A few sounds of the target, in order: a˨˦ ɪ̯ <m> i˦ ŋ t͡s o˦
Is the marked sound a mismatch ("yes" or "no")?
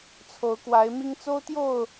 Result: no